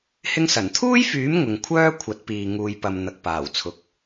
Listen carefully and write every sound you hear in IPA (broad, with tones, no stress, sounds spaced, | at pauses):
h ɪ˧ ŋ s ɐ˨˩ n t̪ʰ uː˥ j f yː˨˥ m ŋ ʊ˨ ŋ kʷʰ œː˥ kʷʰ ɐ˨˥ t̚ p iː˨ ŋ uː˨ j p ɐ˨ m n̪ ɐ˨ k̚ p aː˨˩ w t͡sʰ ʊ˨ k̚